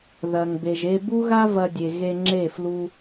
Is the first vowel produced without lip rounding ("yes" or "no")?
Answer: yes